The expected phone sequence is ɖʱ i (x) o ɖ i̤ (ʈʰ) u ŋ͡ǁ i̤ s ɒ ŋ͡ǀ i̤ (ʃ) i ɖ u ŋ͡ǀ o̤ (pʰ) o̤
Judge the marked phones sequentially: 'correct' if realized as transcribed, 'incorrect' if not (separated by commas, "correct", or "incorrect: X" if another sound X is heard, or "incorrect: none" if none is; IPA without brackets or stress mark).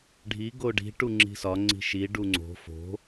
incorrect: ɡ, incorrect: ʈ, correct, incorrect: f